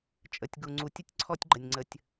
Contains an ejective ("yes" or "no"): yes